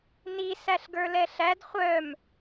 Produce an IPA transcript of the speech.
ni sæɬɡə˞lɛɬæd χʷœm

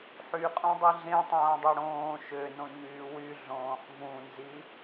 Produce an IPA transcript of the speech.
ħyqʼõdˤi ɮẽtˤõːdˤo ɽõː ʃønõɲyː wyɮõːχ vũnzi

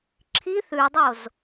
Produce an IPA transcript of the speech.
ǁʰiθ ʉdˤoz

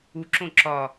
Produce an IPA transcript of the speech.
uǁõ ǁɒ

